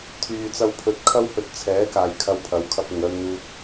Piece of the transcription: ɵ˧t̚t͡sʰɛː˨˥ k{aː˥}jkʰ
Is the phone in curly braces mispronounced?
yes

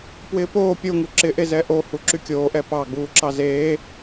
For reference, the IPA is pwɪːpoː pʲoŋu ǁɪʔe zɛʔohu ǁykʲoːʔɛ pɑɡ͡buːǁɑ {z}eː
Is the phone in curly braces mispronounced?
no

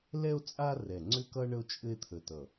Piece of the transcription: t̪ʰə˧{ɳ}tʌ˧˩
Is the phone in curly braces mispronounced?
yes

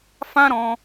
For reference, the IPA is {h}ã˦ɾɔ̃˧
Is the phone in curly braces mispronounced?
yes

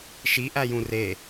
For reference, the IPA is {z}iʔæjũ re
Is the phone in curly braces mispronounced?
yes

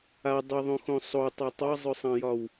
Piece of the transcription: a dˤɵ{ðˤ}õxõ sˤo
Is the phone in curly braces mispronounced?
no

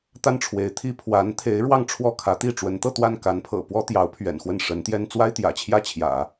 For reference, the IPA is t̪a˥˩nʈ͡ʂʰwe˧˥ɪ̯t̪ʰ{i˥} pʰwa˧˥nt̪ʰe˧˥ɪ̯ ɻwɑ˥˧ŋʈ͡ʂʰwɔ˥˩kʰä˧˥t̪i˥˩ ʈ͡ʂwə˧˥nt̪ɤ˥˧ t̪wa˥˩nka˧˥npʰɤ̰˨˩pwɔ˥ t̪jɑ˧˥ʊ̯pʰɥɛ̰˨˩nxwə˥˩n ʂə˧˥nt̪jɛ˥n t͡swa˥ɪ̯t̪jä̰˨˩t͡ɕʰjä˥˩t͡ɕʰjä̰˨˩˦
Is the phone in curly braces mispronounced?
no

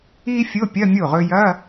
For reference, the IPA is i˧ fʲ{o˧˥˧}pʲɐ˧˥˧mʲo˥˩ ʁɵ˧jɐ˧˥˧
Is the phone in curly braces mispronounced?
no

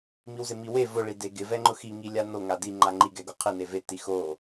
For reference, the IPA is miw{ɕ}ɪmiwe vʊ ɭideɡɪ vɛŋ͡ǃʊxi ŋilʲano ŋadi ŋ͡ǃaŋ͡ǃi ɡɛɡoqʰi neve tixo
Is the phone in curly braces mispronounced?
yes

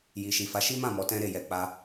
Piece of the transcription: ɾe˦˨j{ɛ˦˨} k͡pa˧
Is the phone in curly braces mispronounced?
yes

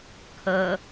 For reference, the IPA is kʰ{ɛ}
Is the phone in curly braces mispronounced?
yes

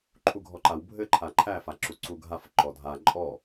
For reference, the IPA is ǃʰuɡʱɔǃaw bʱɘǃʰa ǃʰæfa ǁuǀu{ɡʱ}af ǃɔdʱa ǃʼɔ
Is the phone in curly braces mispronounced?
no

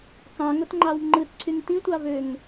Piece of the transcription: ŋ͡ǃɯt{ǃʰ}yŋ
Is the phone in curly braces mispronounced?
yes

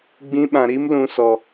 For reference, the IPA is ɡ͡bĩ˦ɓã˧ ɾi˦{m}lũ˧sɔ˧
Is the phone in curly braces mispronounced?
no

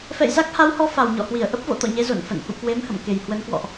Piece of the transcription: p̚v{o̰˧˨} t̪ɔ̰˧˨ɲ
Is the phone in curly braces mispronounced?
no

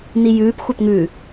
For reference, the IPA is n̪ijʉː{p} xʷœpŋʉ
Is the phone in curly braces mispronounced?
no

